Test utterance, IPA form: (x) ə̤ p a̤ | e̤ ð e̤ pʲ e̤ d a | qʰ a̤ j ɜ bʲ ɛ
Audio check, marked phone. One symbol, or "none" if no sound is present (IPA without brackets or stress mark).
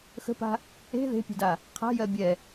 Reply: x